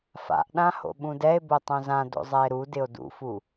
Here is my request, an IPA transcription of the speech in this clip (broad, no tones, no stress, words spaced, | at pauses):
fa̰ʔɗãho̰ ɓũdɛe̯ botˤõzã do̰zˤɛe̯ɾu dɪo̯dṵfu